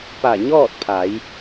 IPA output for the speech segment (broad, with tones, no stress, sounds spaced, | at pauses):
p a˧˩ ɲ ɔː˥˨ t̚ pʰ a˩˧ j